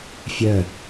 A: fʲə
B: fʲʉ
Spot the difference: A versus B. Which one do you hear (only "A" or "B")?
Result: A